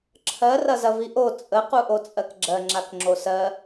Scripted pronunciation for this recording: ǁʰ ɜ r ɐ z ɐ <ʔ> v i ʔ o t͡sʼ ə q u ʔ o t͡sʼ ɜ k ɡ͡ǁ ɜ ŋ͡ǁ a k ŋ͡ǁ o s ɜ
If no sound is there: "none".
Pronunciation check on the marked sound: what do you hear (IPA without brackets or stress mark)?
none